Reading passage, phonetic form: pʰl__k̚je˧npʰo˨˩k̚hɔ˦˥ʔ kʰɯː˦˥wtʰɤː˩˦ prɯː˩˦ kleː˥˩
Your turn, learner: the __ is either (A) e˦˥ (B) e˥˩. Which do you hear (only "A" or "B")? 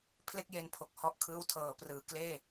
B